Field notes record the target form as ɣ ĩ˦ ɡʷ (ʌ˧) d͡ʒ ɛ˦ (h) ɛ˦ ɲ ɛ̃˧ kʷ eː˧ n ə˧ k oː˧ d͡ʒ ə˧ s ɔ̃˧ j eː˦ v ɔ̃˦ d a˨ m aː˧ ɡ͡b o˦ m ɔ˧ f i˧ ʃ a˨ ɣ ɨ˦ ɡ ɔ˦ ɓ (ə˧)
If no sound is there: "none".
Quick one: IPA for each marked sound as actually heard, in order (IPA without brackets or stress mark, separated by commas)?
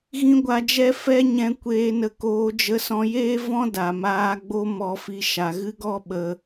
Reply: a˧, f, ə˧